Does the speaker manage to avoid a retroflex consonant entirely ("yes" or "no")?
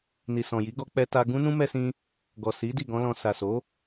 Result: yes